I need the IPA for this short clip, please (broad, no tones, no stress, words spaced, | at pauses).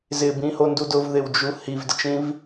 zɪbĩhondu dʊvðɪwd͡ʒu hivdɪt͡ʃĩv